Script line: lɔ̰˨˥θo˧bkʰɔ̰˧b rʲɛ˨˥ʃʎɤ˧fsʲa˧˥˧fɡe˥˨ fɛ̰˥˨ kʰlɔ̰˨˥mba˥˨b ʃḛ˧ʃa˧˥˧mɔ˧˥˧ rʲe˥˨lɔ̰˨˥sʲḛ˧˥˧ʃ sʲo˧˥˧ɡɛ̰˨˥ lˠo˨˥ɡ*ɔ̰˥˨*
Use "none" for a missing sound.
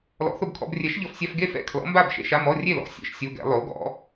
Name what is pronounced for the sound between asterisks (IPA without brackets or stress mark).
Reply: ɔ̰˨˥